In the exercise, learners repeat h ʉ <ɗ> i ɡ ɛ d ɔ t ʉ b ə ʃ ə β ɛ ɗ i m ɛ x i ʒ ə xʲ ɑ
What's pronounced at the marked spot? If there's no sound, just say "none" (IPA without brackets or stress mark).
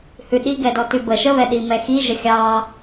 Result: ɗ